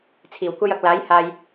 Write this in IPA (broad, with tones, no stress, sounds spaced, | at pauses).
t͡sʰ iː˨˩ w kʷ ɐ˥ j ɐ˧ k̚ l aː˨˥ j h aː˨ j